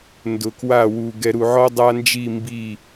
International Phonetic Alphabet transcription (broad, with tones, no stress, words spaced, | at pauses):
ndʊ˨kwa˦˨wu˨ ɡɛ˨ɾu˨ʕɔ˦ dˤa˦nd͡ʒi˦˨mbi˦˨